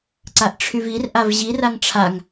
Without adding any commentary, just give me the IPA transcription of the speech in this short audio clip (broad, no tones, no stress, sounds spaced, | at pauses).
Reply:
ǀ a ʔ ʈ͡ʂʰ y v i r ʔ a v ʑ i r a ŋ ʈ͡ʂʰ a ŋ